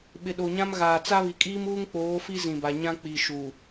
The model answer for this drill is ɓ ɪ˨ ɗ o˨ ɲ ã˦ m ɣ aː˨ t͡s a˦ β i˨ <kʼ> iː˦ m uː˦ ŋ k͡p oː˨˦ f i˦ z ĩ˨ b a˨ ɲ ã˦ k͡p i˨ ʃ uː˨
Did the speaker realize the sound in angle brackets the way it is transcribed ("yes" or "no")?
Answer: yes